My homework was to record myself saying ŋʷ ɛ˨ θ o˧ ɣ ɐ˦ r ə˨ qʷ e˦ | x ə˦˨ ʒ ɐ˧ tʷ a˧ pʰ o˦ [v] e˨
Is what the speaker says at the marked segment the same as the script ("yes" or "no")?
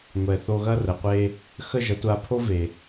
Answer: yes